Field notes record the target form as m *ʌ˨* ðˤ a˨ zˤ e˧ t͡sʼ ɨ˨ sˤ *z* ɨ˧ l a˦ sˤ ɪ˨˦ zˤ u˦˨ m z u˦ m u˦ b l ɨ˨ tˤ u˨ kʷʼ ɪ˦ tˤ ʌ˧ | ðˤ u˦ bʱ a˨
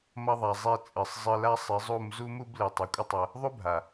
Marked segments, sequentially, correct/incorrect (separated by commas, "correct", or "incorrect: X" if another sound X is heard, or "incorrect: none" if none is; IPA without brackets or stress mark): incorrect: ʌ˧, incorrect: zˤ